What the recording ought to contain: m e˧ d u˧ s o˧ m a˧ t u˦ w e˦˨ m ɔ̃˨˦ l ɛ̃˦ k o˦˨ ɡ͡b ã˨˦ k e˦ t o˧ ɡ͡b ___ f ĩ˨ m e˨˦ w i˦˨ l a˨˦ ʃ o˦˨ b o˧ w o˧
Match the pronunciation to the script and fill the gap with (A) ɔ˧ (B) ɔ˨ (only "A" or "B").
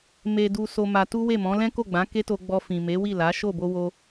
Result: A